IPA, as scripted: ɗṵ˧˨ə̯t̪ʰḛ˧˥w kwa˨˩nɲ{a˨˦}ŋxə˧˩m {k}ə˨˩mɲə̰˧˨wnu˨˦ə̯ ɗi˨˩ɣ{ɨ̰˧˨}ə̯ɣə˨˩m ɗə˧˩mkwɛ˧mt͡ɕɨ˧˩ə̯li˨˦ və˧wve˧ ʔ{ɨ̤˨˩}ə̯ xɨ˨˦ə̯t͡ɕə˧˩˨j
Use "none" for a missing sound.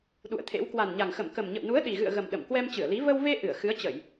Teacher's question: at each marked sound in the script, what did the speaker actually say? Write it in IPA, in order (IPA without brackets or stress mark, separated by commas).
a˨˩, k, ɨ̰˧˨, ɨ˧˩